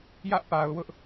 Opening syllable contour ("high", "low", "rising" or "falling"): high